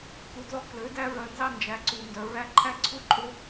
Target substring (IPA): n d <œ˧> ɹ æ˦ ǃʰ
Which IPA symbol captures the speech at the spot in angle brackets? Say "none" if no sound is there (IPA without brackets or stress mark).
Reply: œ˧